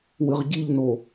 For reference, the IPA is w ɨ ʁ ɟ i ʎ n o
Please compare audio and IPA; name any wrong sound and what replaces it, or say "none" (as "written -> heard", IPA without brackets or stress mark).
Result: none